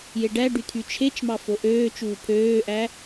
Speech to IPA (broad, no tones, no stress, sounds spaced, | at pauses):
j e ɖ æ ɖ y t̪ʰ y t͡ʃʰ e t͡ʃ m ɑ f o ʔ øː t͡ʃ uː pʰ øː ʔ æ